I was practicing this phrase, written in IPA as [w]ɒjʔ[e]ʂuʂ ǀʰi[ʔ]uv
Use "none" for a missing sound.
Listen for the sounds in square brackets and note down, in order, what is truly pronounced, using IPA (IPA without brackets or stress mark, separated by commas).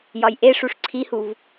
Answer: j, e, h